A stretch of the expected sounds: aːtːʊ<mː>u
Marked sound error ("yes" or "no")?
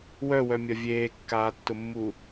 no